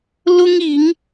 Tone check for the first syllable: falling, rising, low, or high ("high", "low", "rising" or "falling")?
high